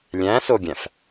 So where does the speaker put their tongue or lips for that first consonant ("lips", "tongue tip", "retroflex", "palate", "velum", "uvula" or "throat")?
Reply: tongue tip